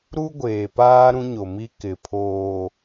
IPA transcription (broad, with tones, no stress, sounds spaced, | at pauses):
ɾ u˦ ɡʷ eː˨ p aː˦ ɾ ũ˦ ɲ o˨ m i˦ k ɪ˨ pʰ oː˨